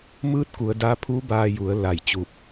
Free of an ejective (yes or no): yes